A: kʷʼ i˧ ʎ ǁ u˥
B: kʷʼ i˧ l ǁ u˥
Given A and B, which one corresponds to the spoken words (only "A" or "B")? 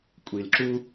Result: B